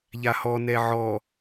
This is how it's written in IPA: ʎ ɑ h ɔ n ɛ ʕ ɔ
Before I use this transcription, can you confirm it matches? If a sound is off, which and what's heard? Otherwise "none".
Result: ɑ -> a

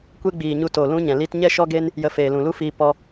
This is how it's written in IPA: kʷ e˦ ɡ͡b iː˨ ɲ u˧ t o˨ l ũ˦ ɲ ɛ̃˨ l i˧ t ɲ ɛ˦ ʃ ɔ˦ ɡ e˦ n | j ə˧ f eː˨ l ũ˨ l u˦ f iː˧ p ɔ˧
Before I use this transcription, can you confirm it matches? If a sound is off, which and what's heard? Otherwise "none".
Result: none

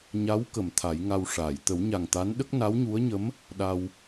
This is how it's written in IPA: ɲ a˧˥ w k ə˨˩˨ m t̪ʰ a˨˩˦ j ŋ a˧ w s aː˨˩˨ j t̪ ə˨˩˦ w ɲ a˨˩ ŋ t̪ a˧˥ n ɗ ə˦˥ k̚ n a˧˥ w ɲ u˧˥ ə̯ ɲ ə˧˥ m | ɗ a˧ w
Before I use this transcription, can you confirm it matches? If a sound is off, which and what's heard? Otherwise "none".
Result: s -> ʂ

